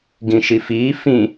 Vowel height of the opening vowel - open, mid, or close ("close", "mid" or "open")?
close